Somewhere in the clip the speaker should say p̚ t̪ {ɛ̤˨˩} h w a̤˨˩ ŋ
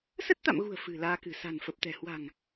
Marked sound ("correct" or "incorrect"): correct